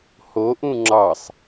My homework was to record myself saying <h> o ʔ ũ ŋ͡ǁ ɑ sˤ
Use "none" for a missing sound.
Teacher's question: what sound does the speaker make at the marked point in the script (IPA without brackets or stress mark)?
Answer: h